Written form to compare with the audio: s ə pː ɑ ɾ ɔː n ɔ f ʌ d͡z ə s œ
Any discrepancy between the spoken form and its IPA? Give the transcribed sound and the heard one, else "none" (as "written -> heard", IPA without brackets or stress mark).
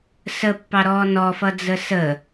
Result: œ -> ə